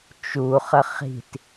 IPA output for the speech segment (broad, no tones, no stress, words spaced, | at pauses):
t͡ʃuχə χi̤t